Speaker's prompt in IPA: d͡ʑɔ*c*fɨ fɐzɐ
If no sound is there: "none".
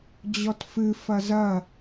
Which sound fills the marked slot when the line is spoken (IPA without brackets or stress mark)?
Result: t